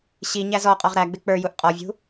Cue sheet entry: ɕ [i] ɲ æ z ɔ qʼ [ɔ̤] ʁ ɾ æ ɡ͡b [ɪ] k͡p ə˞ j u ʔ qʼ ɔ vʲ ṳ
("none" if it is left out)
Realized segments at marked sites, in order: i, ɔ, ɪ

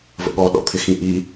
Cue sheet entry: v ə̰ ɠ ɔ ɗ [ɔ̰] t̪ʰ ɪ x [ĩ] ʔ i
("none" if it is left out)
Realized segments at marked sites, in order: ɔ̰, ĩ

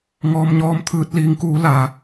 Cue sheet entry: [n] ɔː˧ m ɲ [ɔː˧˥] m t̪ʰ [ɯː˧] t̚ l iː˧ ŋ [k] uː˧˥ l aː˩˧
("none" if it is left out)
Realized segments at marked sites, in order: ŋ, ɔː˧˥, ɯː˧, k

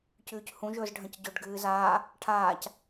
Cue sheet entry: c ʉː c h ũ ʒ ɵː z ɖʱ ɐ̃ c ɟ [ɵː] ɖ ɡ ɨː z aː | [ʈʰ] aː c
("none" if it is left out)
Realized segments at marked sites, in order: ɵ, ʈʰ

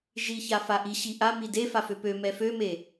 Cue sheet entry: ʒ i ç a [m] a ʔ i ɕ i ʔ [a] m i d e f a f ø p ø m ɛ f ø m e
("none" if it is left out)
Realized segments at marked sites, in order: f, a

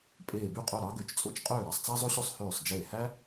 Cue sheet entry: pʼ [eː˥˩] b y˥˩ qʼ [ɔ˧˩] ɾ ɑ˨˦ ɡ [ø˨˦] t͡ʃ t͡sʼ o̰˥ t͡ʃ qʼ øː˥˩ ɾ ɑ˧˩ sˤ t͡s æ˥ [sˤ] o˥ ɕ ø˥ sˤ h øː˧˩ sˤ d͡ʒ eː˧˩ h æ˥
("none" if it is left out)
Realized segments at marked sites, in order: eː˧˩, o˧˩, ø˨˦, zˤ

